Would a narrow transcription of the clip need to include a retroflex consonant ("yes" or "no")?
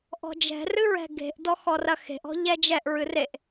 no